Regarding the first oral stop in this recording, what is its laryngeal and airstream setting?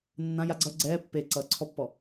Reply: click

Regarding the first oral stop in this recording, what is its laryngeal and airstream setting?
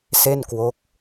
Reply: plain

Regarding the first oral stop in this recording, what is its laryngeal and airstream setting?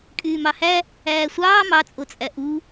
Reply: ejective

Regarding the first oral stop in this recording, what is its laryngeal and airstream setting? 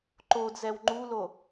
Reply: click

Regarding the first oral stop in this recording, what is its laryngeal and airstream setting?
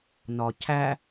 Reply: aspirated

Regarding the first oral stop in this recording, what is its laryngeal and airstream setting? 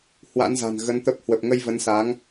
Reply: plain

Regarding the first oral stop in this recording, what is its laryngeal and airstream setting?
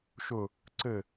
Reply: click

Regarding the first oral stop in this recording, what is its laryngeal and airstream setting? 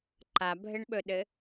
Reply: click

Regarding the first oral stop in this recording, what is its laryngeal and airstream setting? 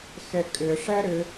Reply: ejective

